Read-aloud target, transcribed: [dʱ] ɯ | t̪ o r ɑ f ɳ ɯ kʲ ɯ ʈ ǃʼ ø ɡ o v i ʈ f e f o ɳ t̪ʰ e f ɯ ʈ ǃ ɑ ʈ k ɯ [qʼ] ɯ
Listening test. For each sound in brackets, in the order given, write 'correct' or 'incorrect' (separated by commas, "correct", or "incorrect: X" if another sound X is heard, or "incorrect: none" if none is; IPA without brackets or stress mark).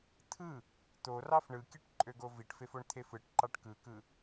incorrect: t̪ʰ, incorrect: k